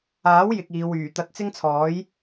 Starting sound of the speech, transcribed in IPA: aː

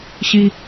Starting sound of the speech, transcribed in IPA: ɕ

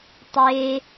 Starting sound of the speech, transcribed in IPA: tˤ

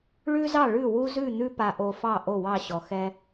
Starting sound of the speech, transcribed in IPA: ɭ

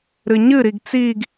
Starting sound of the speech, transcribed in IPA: ɾ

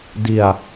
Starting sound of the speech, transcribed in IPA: d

